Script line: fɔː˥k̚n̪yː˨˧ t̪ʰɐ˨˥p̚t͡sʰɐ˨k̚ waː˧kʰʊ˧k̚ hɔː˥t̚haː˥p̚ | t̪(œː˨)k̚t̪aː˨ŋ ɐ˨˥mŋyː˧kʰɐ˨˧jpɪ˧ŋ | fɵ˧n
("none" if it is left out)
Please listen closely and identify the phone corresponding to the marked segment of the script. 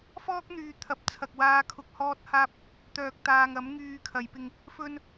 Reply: œː˨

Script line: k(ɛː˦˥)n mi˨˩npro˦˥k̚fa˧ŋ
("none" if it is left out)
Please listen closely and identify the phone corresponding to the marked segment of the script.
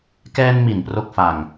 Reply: ɛː˧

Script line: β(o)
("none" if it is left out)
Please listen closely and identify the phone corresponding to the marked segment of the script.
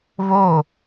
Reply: o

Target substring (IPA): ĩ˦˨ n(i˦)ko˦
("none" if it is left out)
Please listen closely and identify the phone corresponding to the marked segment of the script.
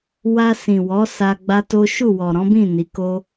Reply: i˨˦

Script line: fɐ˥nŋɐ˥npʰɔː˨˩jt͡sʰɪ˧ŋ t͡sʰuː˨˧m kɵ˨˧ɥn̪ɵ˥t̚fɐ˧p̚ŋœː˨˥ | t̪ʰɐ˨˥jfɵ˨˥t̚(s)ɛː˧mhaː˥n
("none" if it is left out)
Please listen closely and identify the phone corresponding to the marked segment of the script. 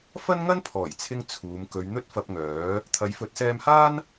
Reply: s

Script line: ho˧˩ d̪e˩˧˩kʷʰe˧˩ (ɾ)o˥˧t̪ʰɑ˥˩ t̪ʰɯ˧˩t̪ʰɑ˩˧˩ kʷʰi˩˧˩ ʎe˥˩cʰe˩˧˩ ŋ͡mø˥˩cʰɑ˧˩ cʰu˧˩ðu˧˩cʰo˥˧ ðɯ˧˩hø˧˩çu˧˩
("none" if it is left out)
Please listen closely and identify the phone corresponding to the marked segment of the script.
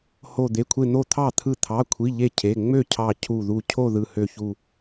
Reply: n̪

